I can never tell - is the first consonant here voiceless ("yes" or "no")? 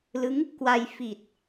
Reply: no